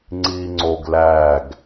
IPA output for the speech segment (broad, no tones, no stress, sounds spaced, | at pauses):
ŋ͡ǀ iː ŋ͡ǀ o ɡ l æ ɡ